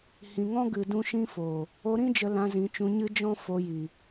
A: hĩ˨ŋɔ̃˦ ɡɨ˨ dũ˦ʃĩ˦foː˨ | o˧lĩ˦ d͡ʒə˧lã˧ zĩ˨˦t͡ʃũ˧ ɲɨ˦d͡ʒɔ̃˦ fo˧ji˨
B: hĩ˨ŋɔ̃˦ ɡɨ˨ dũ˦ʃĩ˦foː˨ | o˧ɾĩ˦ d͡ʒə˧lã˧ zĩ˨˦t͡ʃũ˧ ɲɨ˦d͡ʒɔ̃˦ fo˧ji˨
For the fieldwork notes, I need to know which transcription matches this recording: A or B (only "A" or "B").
B